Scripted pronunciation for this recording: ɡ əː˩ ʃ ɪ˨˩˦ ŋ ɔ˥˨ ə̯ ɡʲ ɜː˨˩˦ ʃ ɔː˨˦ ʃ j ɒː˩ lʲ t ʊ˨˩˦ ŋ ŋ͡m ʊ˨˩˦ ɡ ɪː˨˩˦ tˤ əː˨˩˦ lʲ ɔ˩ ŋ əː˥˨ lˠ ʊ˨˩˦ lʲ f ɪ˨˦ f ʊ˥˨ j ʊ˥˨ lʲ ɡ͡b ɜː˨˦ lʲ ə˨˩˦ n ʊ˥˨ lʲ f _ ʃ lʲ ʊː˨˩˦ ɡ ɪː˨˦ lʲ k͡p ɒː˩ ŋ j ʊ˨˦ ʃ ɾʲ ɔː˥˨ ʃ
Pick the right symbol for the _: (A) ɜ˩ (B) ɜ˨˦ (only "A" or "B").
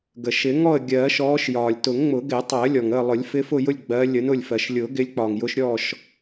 A